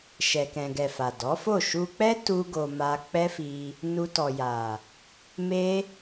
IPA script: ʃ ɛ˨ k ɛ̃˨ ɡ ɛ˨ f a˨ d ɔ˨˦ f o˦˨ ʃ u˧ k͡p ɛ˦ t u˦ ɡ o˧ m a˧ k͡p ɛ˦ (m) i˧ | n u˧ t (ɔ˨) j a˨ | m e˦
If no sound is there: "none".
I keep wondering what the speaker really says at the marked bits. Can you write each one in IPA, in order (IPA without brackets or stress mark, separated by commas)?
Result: f, ɔ˨